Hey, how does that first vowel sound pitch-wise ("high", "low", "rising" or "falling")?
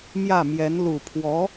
falling